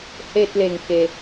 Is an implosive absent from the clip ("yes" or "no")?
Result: yes